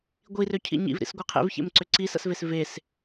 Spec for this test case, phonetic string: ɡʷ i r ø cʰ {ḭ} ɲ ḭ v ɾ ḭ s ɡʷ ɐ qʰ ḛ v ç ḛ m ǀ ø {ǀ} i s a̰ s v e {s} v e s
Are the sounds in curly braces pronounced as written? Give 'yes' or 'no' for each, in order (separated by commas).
yes, yes, yes